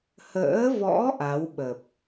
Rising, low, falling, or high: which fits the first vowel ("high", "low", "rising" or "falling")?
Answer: rising